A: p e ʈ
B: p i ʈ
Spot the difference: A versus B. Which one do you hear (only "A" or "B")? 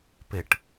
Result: A